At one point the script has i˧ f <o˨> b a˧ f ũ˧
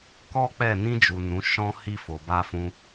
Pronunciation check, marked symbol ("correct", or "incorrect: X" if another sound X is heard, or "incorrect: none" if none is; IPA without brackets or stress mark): correct